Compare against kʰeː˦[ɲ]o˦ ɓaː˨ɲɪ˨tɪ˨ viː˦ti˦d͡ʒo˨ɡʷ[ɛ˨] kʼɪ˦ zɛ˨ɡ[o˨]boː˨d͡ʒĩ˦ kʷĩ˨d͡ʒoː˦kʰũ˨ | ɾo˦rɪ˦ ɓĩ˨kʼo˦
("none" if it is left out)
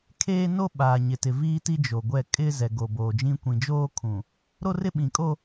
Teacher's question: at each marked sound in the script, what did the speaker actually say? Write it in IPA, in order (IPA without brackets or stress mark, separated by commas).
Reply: n, ɛ˦˨, o˨